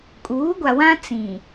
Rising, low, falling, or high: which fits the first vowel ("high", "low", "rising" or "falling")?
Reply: rising